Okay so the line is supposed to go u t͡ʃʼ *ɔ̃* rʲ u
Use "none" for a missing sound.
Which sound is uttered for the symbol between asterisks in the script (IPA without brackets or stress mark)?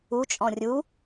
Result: ɔ̃